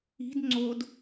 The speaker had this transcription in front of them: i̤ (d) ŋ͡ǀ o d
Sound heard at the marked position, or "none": d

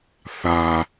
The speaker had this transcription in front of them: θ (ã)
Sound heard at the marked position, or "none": a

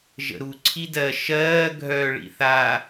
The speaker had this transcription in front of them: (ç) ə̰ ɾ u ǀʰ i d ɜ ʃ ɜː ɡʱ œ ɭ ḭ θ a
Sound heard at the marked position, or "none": ʒ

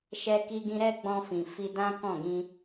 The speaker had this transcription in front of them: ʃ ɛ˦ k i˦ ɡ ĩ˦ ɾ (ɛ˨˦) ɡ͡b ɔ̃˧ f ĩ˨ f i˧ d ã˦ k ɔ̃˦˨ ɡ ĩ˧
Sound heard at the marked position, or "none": ɛ˦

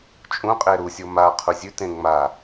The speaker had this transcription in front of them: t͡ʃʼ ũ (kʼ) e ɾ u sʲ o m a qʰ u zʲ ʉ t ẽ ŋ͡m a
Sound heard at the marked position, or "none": qʼ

